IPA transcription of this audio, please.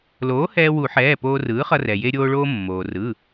loː˩˥hɛː˧wu˨˩˦ħɛː˩˧˩ poː˧rɯː˩˥χʌ˧rɛ˩ je˧ɾʲoː˧ɭoː˧ mːoː˩ rɯ˩˧˩

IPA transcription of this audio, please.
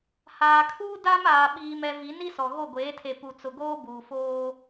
haː˨kʰuː˦ da˦maː˨ ɓiː˨mɛ˨vi˨˦n i˦sɔ˨ ɣo˦˨ɡʷeː˨˦tʰe˨ pu˨t͡sʊ˨ɡoː˦ buː˨foː˦

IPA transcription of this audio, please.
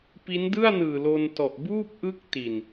pi˦˥ndɯ˥˩a̯nɯː˨˩ lo˧ntɔ˨˩ʔ buː˥˩p̚ʔɯ˦˥k̚ ti˨˩n

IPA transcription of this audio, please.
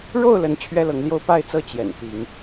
ɻo˥˨ʊ̯lə˨˦n t͡ɕʰɥɛ˦lɤ˨˦ŋljo˦ʊ̯ pa˥˨ɪ̯t͡sɤ˥˨ t͡ɕjɛ̰˨˩n t̪i˨˦ŋ

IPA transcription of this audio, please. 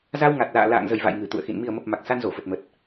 za˧wŋa˨˩t̚la̰ː˧˨ la̰ː˧˨ŋzə˨˩jva̰˧˨j ŋɨ˨˩t̪ṵ˧˨ə̯xḭ˧˨n mi˨˩ə̯mə˨˩p̚ ma˨˩k̚sa˧n zo˧˩fə˨˩t̚mə˨˩t̚

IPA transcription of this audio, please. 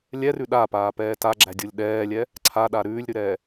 lʲɛrʉ ɗapaːpɛː taɡ͡ǁædʲolʲ ɗɛːlʲɛ | ǀʰaɗa ɾʉːlʲɾʉɾɛː

